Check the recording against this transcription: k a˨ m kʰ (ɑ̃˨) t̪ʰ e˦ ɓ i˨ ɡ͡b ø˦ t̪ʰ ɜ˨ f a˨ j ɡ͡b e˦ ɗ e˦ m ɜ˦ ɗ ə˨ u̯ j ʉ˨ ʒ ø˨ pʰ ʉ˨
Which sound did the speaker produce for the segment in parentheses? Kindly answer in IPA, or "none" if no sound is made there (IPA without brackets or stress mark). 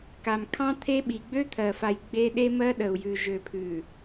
ɑ̃˦